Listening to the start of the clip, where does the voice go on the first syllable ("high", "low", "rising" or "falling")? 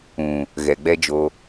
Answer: low